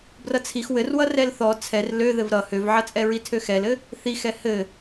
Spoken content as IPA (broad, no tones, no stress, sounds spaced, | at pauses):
b r ʌ t͡sʰ i x w ɘ r w ʌ r ɛ l θ ɔ t͡sʰ ɛ r l ø ð ɘ v ɾ ʌ h ø v ʕ ʌ t͡sʼ ɛ ɹ i tʰ ø x ɛ l ɘ | θ i x ɛ h ɘ